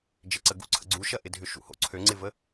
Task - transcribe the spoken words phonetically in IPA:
d͡ʒ ɪ ǀ ə ɡ ṵ ǀʰ ə̰ ɡ͡ǀ u ʃ ɐ ʔ ɪ dʱ ʏ ʃ ṵ h o̰ ǀʰ ø ŋ͡ǀ ɪ v ə

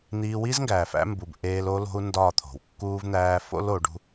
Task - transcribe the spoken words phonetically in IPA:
n̪ iː˧ w i˦ z ŋ ɡ æː˨ f æ̰˦ m b u˨ b ʔ eː˧ l o˦ l o̤˦ u̯ n d ɒː˦˨ t̪ʰ o̤˨ w kː uː˦ v n̪ æː˦ f o̰˦ l o˨˦ ɖ ṳ˦

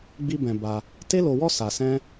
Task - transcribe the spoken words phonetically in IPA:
ɡ͡b i˦ b ɛ̃˧ b a˧ | t e˦ l o˧ w ɔ˦ s a˧ s ɛ̃˦

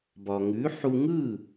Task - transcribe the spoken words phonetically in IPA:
b ɒ˩ ŋ ʉ˩˥ ħ u˧ ŋ ɯ˥˩

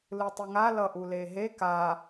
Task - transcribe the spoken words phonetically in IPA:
l ɯ tˤ i ŋ a l ʌ ʔ u l e ɦ e k a

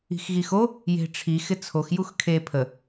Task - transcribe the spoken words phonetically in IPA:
i̤ x ɣ i x o | j e̤ ʈ͡ʂʰ i x ɪ t͡sʰ o x j u x kʰ e pʰ ə

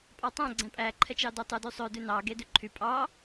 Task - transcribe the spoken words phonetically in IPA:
pʼ ɑ tˤ æ̃ ɡ͡ǀ æ̃ pʼ æ ǃʰ ɛ t͡ʃ ɑ d ø tˤ ʉ d y sˤ ø d ʉ n ɑ ɡ e d ʉ ǃʰ y pʼ ɑ

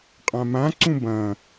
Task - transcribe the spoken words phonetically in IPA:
qʼ ã m ã ǀ ũ b ɐ̃

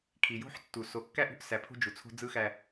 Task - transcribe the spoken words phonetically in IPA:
kʰ i˨ j o̤˦ ħ tː u˨ s o˨ kː æ˦ ʔ ṳ˦ ʔ s æ˨ pʰ o̤˦ d͡ʒ u˨ t͡sʰ o̤˦ d͡z ɯ˦ x æ˦

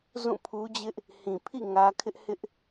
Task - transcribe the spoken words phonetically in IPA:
z ũ˦˨ pʰ u˦ d͡ʑ ɪ˦ ʔ | h ĩ˨ pʰ ḭ˦˨ ŋ ä˦ kʰ ɪ˦ ʔ h ɪ˦ ʔ

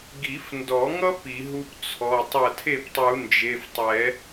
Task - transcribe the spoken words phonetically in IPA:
ɡ i˨˩˦ f n d ɔ˨˩˦ ŋ ʌ˥ p i˨˩˦ ɦ u˥ p t͡sʰ ɔ˩˧˩ tˤ ʌ˥˩ tʰ e˥˩ p tˤ u˨˩˦ n d͡ʒ e˩˧˩ f tˤ ɛ˨˩˦

